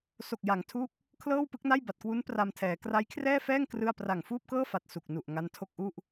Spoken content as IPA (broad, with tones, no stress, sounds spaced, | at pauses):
s o˨˩ k̚ j a˩˦ ŋ tʰ u˦˥ k̚ | kʰ l ɤː˥˩ w p ɯ˦˥ k̚ n a˥˩ j b a˨˩ t̚ k w u˦˥ n p r a˧ m tʰ ɛː˩˦ k r a˦˥ j kʰ r ɛː˥˩ f ɛː˥˩ ŋ k r ɯ˥˩ a̯ p r a˨˩ ŋ f uː˥˩ p̚ k ɤː˥˩ f a˨˩ t̚ s u˨˩ k̚ n u˨˩ ʔ ŋ a˦˥ n tʰ o˥˩ k̚ ʔ u˥˩ ʔ